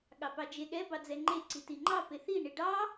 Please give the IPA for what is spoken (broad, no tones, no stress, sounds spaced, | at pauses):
ɠ ɑ p ɑ d͡ʒ e ɠ ɛ b ɑ d͡z ɛ ŋ͡ǃ e ǀ i t i ŋ͡ǃ ɑ p e θ i ɳ i ɖ ɑ